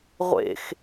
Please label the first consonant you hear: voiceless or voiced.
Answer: voiced